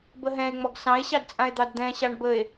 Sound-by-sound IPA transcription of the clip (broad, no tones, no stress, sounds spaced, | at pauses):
b ə ɦ ɛ̃ e̯ ŋ͡m ɔ ɡ s ɑ̃ e̯ ɕ ɑ d t͡sʼ ã e̯ d̪ ɑ d d̪ ɛ̃ ɕ ɑ ɳ b ə e̯